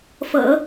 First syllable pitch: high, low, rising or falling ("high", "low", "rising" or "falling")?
low